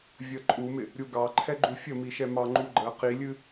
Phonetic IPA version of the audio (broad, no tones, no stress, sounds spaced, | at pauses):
vʲ ə ǃʼ u m ɪ | ɾʲ u ɡ ɑ ǃʰ ɛ ɡ͡ǃ u fʲ ə m i ʃ ɛ m ɑ ŋ͡ǃ u ɡ͡ǃ ə q i lʲ ɨ